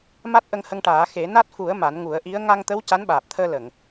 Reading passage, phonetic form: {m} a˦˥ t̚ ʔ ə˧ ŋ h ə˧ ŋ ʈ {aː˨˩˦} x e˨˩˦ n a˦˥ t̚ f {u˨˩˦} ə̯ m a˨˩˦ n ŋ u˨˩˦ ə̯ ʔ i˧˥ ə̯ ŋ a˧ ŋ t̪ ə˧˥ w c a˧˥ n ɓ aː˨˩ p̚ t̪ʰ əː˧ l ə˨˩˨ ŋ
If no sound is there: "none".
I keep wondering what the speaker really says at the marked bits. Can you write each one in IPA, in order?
m, aː˨˩˦, u˨˩˦

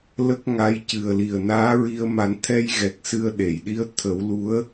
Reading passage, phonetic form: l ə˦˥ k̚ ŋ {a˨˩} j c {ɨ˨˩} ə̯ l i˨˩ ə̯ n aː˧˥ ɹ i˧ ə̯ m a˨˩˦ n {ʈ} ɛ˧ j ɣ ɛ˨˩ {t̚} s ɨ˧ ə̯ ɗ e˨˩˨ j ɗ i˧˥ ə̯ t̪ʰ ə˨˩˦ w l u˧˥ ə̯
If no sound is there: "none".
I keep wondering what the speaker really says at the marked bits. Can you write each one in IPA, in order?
a˧˥, ɨ˨˩, t̪ʰ, k̚

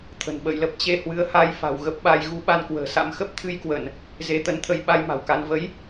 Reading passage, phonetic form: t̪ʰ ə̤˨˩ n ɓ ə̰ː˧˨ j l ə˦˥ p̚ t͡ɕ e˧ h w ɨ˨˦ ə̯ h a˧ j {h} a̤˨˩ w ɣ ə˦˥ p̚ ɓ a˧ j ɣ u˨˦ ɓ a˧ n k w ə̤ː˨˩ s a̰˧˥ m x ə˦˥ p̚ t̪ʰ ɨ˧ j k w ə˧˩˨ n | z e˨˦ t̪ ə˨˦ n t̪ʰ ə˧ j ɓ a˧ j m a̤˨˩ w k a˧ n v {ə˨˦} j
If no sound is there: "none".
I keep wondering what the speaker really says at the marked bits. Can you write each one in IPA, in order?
f, ə˨˦

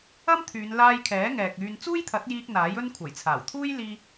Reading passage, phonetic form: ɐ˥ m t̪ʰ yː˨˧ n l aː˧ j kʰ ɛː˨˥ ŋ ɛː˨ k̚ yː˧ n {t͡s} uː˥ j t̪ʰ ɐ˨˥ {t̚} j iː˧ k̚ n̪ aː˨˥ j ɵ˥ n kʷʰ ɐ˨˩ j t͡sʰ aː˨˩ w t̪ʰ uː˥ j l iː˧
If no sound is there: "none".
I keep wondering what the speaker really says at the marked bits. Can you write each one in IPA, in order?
t͡s, t̚

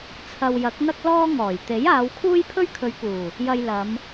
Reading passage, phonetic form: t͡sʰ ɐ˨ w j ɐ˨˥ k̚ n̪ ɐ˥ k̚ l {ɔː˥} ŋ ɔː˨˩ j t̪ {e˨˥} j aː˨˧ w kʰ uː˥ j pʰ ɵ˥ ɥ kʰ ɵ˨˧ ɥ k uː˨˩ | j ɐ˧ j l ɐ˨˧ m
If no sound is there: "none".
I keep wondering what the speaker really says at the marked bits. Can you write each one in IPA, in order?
ɔː˥, e˨˥

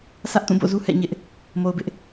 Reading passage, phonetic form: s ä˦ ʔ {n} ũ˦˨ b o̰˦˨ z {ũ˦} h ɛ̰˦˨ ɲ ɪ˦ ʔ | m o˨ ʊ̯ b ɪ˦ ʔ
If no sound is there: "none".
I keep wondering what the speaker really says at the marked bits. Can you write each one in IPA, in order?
t, u˦

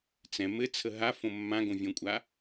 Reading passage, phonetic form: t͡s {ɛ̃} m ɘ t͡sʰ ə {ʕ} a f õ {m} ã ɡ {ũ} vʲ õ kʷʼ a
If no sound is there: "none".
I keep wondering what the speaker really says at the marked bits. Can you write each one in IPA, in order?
ɛ̃, ɦ, mː, õ

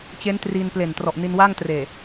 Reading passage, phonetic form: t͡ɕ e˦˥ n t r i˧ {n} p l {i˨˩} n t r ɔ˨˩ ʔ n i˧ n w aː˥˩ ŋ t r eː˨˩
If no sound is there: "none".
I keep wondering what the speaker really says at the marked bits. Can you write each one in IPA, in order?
n, e˨˩

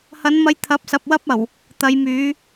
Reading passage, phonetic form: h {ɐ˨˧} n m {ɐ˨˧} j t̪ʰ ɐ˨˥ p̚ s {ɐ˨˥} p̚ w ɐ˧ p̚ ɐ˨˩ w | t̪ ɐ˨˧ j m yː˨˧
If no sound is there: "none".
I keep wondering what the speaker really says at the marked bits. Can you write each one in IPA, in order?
ɐ˨˧, ɐ˨˧, ɐ˨

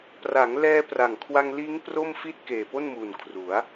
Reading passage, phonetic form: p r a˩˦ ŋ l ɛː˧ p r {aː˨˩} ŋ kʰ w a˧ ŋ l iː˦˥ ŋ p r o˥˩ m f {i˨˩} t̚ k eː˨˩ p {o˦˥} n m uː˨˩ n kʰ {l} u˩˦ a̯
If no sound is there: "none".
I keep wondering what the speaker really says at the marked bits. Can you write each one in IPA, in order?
a˨˩, i˥˩, o˥˩, r

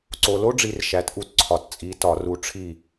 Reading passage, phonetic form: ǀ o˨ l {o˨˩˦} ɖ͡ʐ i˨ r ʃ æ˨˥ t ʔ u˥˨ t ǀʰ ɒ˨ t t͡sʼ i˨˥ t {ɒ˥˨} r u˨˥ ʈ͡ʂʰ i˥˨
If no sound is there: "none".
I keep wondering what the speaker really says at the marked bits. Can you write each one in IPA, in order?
o˦, ɒ˨˩˦

